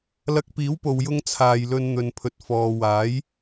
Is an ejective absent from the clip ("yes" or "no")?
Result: yes